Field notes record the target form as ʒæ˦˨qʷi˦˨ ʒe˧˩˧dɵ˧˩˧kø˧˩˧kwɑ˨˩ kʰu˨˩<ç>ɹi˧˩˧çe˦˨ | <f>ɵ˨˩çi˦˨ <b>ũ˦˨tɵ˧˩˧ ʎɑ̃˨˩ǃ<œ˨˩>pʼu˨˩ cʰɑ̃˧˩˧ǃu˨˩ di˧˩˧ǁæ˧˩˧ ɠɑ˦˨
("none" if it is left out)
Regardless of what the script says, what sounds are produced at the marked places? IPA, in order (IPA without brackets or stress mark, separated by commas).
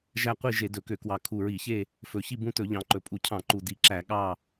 none, f, b, ɵ˨˩